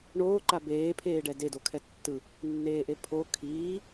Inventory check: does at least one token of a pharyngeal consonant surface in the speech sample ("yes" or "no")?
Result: no